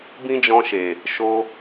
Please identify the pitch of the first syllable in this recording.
high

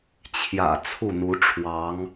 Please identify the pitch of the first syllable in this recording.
low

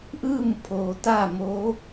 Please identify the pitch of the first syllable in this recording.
falling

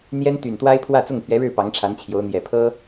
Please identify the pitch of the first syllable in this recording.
high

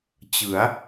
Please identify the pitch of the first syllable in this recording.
rising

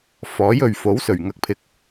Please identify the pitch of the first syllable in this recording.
rising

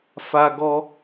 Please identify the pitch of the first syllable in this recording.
high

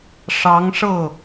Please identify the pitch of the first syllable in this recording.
rising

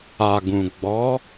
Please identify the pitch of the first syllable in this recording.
low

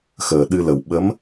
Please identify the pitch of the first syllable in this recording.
low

